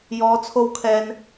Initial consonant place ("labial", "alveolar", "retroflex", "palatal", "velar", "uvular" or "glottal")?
palatal